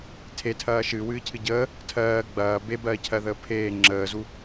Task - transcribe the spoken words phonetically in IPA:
tʰ e tʰ ɐː ʃ ɨː w ɨː cʰ ɨ ɟ əː | tʰ ɜː ɡ͡b ɐː b e b ɜː cʰ ɜ ð əː pʰ eː ŋ͡ǁ əː z u

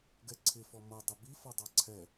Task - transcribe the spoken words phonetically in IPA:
ɡ ɛ ǀʰ ɪ f ɔ m ʌ dˤ ə b i f ɒ dˤ ɑ ǀʰ ɛ

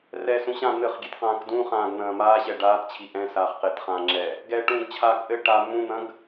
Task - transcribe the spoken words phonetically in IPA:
r ɛ s ũ ɕ ã n̪ ɘ χ ɡʲ e t q ãː k d ũ χ ãː ɡ n̪ ɐ̃ː m aː ɕ ɛ ɖ aː t t͡ɕʰ i ʔ ɛ̃ s aː χ q e t χ ãː ŋ͡ǁ ɛ | ɡ ɛ ʈ ũː ɡ t͡ɕʰ aː k ʔ ɘ ʈ a m ũ n̪ ɐ̃ ɡ

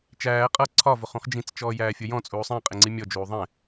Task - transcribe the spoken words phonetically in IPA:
t͡ʃ æː qʼ ʌ ǀʰ ɒ v ʊ χ ũ χ d͡ʒ ĩ t͡s t͡ʃ ɔː j æː fʲ ʊ j ɔ̃ t͡sʼ uː sˤ æ̃ qʼ ɪ ŋ͡ǀ i mʲ ɔ d͡ʒ uː ðˤ ɛ̃

